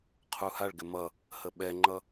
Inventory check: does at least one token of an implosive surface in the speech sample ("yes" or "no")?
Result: yes